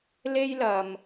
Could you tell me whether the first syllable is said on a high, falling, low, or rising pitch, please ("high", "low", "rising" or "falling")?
high